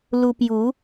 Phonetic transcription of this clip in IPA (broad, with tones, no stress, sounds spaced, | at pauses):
l u˧ p j u˨˦